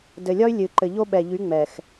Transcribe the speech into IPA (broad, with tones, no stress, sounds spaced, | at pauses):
d ɘ˨ lʲ ɒ˦ y̯ lʲ ɨ˨ ǃ ɘ˨ ʎ o˦ ɓ ɛ˨ ʎ y˨˦ ŋ͡m ɛ˨ x